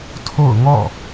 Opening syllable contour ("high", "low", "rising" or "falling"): falling